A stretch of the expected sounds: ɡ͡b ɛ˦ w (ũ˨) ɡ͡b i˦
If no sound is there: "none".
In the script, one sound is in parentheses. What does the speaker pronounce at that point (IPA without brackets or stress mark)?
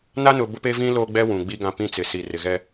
ũ˨